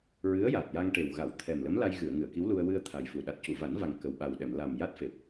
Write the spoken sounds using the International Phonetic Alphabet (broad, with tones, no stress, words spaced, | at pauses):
ɹɨ˧˥ə̯ja˨˩t̚ja˧ŋ ʈe˨˩w ɣa˨˩˨w t̪ʰɛ˨˩mlə˧˥mla˧j ɣɨ˨˩˨ə̯ŋɨ˨˩˨ə̯ki˧˥wlu˧ə̯ wɨ˧ə̯ t̪ʰa˨˩jfu˨˩ ɗa˨˩t̚cu˨˩˨va˨˩˦nva˨˩ŋ kə˨˩wɓa˨˩w ɗɛ˨˩˨m la˨˩m ja˦˥t̚fe˨˩p̚